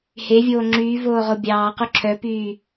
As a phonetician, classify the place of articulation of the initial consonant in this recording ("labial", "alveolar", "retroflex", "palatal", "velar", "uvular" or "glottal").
glottal